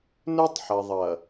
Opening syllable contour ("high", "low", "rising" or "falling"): high